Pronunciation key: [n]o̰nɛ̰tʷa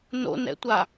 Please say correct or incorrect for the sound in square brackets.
correct